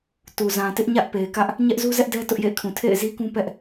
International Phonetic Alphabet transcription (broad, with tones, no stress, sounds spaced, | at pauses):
t u˨ z ã˨ t ɪ˦ ʔ ɲ ä˦ ʔ p e˨ ɪ̯ k ä˦ ʔ | ɲ ɛ˦ ʔ z u˦ z ɛ˦ ʔ d ɛ˦ t ʊ˦ ʔ j ḛ˦˨ ɪ̯ kʰ ũ˨ tʰ ḛ˦˨ ɪ̯ z i˦ k ũ˦ p ɛ˦ ʔ